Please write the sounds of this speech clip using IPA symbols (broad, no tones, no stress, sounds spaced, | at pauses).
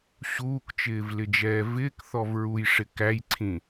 ɕ uː k t͡ʃ ɪː v l ɪ d͡ʒ ɛː v ɪː k θ ɔ v ɹ u j ʂ ɪ k æ j ǀʰ ĩ